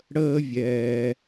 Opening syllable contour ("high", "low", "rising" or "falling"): high